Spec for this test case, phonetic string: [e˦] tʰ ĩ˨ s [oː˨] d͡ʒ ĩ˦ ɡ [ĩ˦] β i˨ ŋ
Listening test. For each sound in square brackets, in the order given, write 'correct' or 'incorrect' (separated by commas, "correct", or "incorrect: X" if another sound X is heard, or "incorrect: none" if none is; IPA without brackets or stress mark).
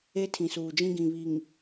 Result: correct, incorrect: uː˨, incorrect: ĩ˨